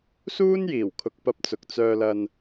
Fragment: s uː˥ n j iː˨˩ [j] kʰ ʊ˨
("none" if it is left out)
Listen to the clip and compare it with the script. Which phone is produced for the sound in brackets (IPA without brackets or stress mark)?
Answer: w